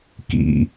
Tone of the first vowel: low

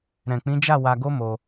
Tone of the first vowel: low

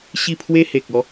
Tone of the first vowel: falling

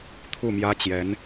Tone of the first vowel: falling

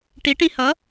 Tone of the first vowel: rising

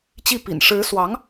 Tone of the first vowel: falling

